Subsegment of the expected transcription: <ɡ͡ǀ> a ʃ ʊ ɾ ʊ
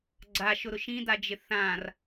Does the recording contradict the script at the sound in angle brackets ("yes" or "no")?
no